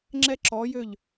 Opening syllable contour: falling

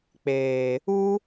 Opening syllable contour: low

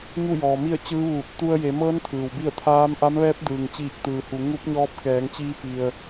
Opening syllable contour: falling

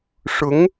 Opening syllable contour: rising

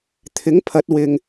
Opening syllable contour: rising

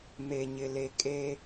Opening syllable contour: low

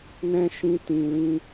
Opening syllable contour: high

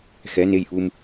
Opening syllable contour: rising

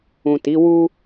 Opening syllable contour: low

